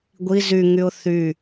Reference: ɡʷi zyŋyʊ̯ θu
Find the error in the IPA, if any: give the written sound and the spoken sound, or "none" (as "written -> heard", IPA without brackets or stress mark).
u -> y